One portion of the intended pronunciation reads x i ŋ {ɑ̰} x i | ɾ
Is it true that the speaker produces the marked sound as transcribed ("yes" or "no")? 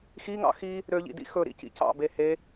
yes